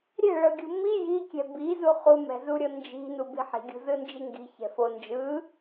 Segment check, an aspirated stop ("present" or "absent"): absent